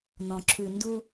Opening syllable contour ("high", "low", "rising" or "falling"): low